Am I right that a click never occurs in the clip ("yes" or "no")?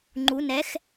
no